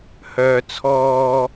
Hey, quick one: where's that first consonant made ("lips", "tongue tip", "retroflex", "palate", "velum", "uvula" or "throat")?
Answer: throat